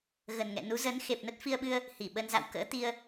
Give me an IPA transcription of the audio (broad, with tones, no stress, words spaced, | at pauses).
ɣə˨˩nŋɛ̰˧˨nu˨˦ zə˨˦n xe˨˩p̚nə˦˥t̚fi˧ə̯ɓɨ˧ə̯ | hi˧˩ɓə˧nza̰˧˨w kə̰ː˧˥t̪i˧ə̯